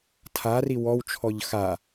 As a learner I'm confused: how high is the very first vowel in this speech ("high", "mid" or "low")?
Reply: low